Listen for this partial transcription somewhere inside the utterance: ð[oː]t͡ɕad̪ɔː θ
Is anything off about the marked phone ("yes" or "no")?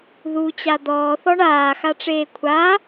yes